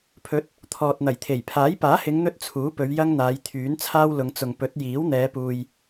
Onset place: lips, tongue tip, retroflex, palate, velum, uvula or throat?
lips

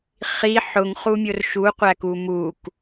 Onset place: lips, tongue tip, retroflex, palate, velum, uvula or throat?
uvula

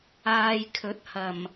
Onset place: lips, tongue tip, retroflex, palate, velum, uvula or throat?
palate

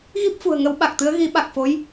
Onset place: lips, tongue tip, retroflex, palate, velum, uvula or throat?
velum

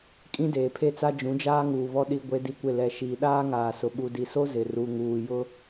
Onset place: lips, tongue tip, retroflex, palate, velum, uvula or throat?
velum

